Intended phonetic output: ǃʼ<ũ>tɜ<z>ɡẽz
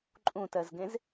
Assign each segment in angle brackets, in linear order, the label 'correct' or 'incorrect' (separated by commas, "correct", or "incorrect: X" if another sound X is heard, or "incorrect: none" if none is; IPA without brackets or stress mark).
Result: correct, correct